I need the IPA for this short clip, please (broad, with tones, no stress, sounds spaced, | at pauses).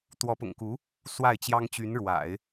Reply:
t̪ w ɔ˧˥ p ʊ̰˨˩ ŋ k u˧˥ | s w a˥˩ ɪ̯ t͡ɕ j ɑ˥ ŋ t͡ɕ y˧˥ n ɻ w a̰˨˩˦ ɪ̯